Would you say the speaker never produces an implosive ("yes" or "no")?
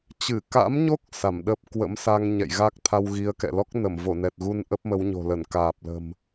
no